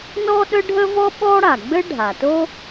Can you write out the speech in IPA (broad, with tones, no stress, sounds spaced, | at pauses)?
n ɔ˥ ɗ ə˥ ɖʱ ə˥ v ɔ˥ ɓ ɔ˥ ɽ a˩ ɡ͡b ɘ˥ ɖʱ a˩ t o˥